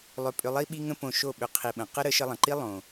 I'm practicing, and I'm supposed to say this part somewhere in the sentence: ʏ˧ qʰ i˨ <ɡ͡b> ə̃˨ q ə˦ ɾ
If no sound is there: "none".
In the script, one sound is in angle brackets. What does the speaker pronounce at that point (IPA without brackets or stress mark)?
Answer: ɓ